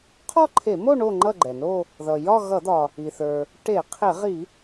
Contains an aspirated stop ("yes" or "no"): yes